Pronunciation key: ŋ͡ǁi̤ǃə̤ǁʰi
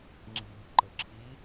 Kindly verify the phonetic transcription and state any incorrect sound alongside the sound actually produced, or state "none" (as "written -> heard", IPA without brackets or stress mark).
none